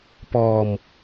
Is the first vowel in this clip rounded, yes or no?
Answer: yes